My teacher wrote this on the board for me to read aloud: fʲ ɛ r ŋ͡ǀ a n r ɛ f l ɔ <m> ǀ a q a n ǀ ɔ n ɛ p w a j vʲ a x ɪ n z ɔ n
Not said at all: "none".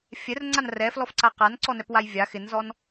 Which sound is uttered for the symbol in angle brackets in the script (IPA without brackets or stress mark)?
f